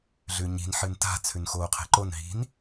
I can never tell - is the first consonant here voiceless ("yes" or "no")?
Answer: no